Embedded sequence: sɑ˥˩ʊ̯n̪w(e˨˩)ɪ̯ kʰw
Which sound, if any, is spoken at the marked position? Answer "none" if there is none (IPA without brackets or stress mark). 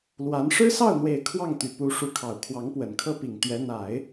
e˨˩